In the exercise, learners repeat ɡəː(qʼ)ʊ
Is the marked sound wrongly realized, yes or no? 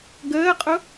no